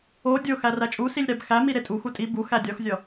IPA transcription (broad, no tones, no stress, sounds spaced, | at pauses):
o dʲ o x æ r æ t͡ʃʼ u s i lʲ ɾ æ b x æ m i ɾ e tʼ u x u tʼ i b u x æ dʲ ɒ x zʲ ɒ